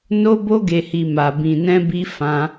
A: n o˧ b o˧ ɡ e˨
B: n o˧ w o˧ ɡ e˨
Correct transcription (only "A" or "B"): A